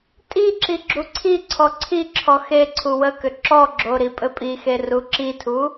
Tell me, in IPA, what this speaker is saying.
tʼiǁi ɡ͡ǁuǀʰiǀʰɔ ǀʰiǁʰɔ xe ǀʰuwəkʏ ǁɔɡ͡ǁo ɾipʼɘpʼixe ruǁitʰu

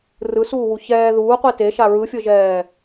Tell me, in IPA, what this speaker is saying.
rɯsuːwu çɛː ðuːqʷi teʃa ɹɯfʲɤʒɛː

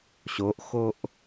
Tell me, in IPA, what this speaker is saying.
ɕoʔxoʔ

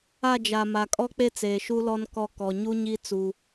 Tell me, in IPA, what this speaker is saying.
a˦˨d͡ʒa˨ ma˨kʼɔ˦k͡pe˦t͡seː˨ ʃu˦lɔ˦nkɔ˦˨ kɔ˨ɲu˦ɲi˦ t͡su˦

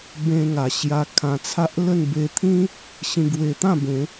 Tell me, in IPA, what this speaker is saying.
bẽ˧ŋa˨˩ɕja˧ kʰã˧t͡sʰa˦ʔ lə˥˧n be˧t̪ʰĩ˦ | ɕĩ˧ɡwe˧t̪ã˥˧bẽ˨˦

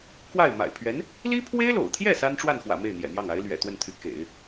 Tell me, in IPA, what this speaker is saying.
kwa˥˩ɪ̯ ma̰˨˩ɪ̯ pʰɥɛ˧˥n | li˥pʰwe˥ɪ̯lo̰˨˩ʊ̯t̪ʰjɛ˥˩ sa˥nʈ͡ʂwa˥˩nxwä̰˨˩ me˥˩ɪ̯n̪jɛ̰˨˩n̪jɑ˥˩ŋ a˧˥ɪ̯lɥɛ̰˨˩t̪wə˥˩nt̪ʰy˧˥ kḛ˨˩˦ɪ̯

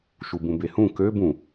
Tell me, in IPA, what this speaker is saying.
ʃubũbehũ kø bũ

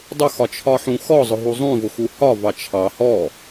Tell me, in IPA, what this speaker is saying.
dˤʊxɒt͡ʃʰɒħũ xɔzˤʊɦu zˤũvʊxu hɒvɑ t͡ʃʰɑ hɔ

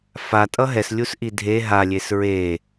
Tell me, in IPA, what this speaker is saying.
fatʼʌ ɦɛslʲusʔi dʱe ɦalʲes ɹe

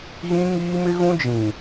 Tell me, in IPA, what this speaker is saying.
ɣĩ˦ŋiː˦mɪ˦ɣũ˦ d͡ʒĩ˨

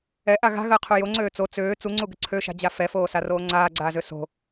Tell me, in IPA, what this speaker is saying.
ɛʔa ɣa̤ɣəːqʰu joŋ͡ǀøː t͡so t͡søː t͡suŋ͡ǀuɡə ǀʰøʃa̤d͡ʑa fɛfoːsaroː ŋ͡ǀaːɡ͡ǀaːzø so̤

